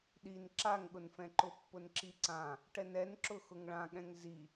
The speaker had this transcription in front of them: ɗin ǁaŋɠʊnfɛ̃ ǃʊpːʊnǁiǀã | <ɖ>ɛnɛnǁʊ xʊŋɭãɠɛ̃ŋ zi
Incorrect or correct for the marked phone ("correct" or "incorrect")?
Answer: incorrect